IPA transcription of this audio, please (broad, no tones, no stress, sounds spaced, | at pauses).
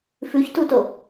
f ʉ ç t u t o